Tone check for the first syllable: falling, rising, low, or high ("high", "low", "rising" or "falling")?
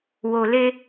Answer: low